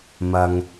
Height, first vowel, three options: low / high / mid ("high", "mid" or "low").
low